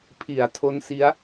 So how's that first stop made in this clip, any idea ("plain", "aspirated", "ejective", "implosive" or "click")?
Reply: aspirated